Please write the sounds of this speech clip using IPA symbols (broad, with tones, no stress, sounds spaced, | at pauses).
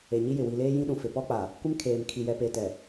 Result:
e˨ ɲ i˦ j ɪ˨ w i˨ l eː˦ j ĩ˦ ɗ ũ˨ f ɪ˨ p ɔ˦ k͡p a˨ | kʷ ɪ˦ m kʰ eː˨ m kʰ i˨ j ɛ˨ p e˨ t ɛ˨